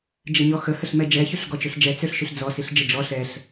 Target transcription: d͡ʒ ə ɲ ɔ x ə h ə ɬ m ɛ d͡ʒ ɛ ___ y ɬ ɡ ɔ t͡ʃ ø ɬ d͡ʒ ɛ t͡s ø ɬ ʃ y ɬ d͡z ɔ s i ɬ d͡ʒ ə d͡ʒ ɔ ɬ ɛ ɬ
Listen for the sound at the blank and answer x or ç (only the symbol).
ç